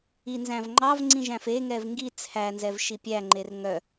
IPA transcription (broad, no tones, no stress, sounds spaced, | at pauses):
i n z æ̃ v ŋ͡ǃ ɑ v ŋ͡ǀ ĩ ʒ æ̃ f e ŋ ɛ v ŋ ɡ i t͡sʰ æ n z ɛ v ʃ i pʲ æ ŋ͡ǃ e r ŋ œ